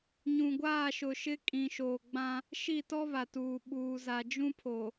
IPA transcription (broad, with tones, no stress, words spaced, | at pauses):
ɲũ˨ɡʷaː˦˨ʃʊ˨ʃɪ˦ kʼĩ˨ʃoː˨ɡ͡bã˦ | ʃi˦˨tɔ˦ βa˨tuː˨ ɓuː˨za˨d͡ʒũ˦pʰo˨